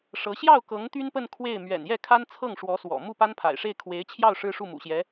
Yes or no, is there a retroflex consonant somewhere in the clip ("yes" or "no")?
yes